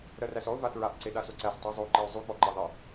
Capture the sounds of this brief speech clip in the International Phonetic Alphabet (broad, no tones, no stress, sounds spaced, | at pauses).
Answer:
ɾ ɜ r æ s ɔ ʊ̯ v a t ɹ a ʔ ǀ e ɗ a s o ǀ æ s tˤ ʉ zˤ o ǃ e ʊ̯ zˤ ʉ k͡p ɔ ǃ a ðˤ e